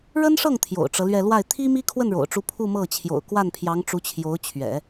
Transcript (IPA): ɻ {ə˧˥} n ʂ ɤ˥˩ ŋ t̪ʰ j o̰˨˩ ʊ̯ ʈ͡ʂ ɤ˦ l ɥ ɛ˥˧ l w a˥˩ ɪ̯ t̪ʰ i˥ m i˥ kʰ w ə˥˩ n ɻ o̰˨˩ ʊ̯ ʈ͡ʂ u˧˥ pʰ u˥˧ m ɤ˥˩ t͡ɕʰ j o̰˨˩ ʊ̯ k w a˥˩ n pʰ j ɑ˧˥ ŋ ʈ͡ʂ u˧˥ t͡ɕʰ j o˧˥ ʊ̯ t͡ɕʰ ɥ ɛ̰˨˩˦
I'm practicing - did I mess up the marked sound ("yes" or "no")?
yes